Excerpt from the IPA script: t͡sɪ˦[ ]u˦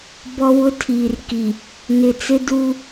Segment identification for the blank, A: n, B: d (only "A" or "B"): B